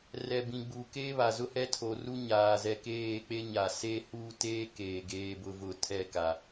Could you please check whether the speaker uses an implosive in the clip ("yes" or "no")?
no